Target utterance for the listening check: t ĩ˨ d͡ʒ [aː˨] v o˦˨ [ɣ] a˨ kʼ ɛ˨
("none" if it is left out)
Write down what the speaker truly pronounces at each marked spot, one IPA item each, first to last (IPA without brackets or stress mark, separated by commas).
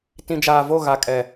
aː˨, ɣ